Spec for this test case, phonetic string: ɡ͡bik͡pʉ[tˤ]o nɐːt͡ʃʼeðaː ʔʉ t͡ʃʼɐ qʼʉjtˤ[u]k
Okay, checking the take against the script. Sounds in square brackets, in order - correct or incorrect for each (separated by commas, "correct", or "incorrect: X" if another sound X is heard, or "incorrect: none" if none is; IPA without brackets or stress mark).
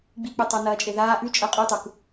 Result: correct, correct